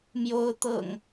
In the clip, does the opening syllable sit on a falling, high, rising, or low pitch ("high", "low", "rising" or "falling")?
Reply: rising